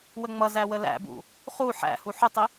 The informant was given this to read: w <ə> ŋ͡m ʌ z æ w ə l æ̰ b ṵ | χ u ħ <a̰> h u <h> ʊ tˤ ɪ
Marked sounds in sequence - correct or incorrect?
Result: correct, incorrect, incorrect

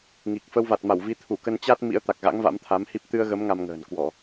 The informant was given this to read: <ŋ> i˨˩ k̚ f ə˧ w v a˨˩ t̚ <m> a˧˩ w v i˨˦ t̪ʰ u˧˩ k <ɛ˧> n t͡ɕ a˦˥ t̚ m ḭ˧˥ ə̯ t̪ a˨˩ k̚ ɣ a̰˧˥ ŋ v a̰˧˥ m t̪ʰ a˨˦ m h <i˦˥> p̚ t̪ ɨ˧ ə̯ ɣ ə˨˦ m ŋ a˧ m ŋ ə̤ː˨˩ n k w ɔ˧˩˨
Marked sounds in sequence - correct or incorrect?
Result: correct, correct, incorrect, correct

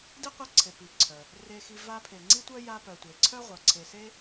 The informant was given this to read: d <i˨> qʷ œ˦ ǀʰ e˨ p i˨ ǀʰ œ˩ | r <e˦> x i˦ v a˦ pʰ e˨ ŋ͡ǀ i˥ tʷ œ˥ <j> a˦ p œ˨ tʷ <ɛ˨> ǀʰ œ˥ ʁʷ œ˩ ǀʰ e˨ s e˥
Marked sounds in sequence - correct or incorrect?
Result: incorrect, correct, correct, incorrect

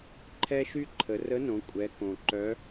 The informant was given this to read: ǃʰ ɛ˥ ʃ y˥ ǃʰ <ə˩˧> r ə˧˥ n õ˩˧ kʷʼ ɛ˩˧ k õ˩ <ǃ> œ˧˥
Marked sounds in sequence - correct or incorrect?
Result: correct, correct

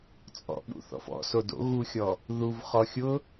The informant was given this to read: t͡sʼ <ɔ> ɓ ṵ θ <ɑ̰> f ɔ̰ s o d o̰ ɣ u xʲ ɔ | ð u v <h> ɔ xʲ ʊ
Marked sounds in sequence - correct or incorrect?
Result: incorrect, incorrect, incorrect

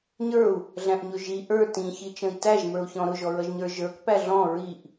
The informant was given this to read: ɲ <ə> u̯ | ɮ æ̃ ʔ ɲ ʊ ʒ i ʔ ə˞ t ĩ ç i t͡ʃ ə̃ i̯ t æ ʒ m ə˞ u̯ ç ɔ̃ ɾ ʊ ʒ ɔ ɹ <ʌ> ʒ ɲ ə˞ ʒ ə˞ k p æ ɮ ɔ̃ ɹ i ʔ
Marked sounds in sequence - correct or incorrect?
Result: incorrect, correct

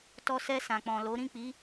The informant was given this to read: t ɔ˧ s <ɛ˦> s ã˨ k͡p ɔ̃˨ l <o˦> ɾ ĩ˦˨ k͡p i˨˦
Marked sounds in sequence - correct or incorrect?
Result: incorrect, incorrect

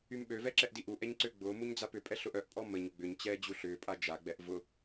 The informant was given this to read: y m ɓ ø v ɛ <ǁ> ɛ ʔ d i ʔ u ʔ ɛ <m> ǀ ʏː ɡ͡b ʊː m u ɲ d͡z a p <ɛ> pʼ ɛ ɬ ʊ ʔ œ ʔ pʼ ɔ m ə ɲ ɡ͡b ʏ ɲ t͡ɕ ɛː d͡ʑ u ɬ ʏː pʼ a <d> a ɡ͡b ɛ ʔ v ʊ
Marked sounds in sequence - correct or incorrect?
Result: correct, incorrect, incorrect, incorrect

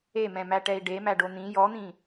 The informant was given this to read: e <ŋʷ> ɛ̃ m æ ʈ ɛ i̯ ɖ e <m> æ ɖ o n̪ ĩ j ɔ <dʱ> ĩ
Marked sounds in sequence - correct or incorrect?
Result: incorrect, correct, incorrect

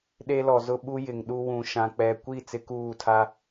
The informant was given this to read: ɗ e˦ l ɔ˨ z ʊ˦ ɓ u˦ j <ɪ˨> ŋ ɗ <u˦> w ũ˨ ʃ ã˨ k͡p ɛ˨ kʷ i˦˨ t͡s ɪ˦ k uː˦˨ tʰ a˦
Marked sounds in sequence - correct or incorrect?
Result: correct, correct

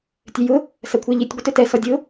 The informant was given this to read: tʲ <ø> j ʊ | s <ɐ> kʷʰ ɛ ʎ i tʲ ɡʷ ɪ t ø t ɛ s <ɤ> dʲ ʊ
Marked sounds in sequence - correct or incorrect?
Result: correct, correct, incorrect

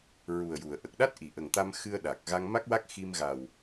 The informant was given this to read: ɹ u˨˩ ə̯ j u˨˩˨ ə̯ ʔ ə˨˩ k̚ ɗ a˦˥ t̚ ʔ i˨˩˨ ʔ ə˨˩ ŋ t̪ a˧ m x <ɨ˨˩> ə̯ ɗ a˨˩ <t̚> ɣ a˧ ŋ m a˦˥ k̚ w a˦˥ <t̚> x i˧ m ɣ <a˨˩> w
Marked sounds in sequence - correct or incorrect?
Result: incorrect, incorrect, incorrect, correct

